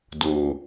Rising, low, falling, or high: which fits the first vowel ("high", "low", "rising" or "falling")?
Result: low